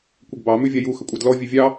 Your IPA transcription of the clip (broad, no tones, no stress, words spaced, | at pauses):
kʷəɡbɑ mʉvʲaju xəkʷʼɑdlɔ vʲʉvʲɑ